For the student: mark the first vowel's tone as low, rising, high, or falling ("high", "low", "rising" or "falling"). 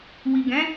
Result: low